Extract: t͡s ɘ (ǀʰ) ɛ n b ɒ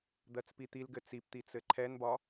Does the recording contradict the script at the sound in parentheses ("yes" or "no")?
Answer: yes